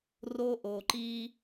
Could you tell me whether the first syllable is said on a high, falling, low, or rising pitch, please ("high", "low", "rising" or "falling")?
high